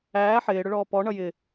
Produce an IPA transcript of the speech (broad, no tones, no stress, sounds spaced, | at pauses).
æː ħ ɪː ɽ ʊ ɭ ɔː p ɔ ɳ ʌ j ɪ